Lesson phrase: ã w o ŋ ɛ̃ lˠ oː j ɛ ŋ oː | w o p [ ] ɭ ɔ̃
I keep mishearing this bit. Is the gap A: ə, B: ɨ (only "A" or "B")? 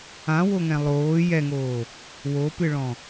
B